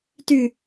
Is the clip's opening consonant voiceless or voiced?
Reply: voiceless